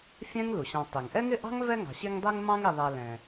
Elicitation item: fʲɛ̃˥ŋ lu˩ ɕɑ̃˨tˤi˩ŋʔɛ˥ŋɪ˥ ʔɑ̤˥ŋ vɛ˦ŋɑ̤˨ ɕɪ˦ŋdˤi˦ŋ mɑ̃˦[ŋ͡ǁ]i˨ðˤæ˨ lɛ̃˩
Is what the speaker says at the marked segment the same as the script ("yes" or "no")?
no